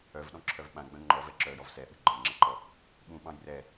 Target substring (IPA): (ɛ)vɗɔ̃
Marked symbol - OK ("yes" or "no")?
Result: no